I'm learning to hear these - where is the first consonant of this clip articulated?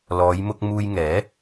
tongue tip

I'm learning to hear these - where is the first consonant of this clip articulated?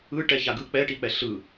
retroflex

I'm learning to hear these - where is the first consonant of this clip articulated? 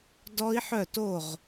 tongue tip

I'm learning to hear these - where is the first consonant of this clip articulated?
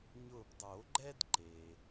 palate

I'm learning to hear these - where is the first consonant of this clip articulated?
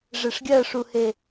retroflex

